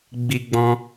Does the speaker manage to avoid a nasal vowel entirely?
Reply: no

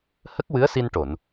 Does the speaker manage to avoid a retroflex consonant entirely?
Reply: no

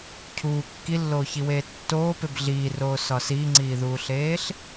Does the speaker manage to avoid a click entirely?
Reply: no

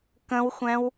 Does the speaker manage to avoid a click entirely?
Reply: yes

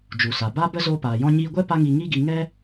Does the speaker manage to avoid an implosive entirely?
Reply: yes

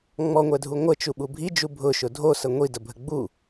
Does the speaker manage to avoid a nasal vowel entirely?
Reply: yes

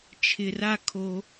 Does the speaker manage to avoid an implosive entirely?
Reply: yes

